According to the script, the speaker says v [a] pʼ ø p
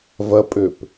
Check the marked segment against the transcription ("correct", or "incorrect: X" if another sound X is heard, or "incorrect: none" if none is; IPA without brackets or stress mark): incorrect: ɐ